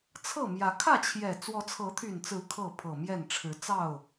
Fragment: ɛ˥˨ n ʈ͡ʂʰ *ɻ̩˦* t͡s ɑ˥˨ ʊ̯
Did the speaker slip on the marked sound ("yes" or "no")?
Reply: yes